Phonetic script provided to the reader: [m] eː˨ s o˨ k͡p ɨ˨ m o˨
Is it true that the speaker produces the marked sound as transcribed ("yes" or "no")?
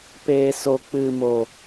no